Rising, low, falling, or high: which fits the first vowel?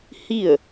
falling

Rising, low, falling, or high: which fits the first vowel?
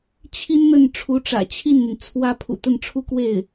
high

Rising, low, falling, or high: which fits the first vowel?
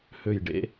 low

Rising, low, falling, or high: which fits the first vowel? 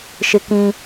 high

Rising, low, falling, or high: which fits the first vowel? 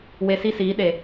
low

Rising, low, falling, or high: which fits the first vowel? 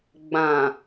low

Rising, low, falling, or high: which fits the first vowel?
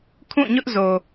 falling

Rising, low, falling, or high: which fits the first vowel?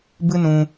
high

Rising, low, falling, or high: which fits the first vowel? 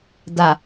low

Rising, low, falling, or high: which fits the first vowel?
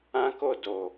high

